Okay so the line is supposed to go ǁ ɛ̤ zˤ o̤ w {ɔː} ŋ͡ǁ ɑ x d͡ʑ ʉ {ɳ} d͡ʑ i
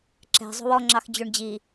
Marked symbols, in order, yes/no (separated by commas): no, yes